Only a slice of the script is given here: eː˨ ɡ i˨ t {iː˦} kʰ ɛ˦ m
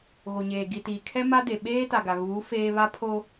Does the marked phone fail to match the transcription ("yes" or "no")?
yes